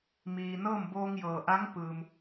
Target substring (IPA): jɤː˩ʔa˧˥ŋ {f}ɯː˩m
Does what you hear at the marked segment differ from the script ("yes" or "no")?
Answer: yes